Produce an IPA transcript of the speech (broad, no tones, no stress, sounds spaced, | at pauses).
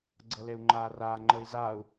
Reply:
ɡ͡ǀ ɤ l e u̯ ŋ͡ǃ aː r aː ŋ͡ǃ əː i̯ z aː u̯